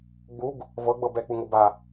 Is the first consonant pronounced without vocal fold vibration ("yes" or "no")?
no